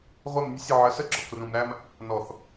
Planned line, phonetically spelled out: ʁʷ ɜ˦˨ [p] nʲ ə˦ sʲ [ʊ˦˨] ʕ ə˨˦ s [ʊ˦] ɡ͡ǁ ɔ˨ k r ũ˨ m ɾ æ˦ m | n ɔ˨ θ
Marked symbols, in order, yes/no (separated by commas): no, yes, no